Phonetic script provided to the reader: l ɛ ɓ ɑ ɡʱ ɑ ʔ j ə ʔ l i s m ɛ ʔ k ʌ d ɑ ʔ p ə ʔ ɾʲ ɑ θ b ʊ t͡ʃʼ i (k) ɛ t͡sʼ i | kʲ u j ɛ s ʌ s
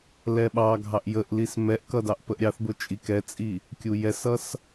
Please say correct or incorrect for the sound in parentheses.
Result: correct